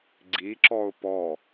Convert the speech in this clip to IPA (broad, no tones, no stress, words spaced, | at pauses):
ɡ͡ǀiǁɔʊ̯ pɔ